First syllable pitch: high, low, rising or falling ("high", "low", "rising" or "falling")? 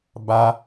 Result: high